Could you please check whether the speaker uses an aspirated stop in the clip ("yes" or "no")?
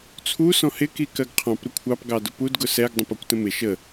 yes